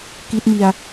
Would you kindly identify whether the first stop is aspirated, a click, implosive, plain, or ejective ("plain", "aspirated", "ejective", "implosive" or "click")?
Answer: plain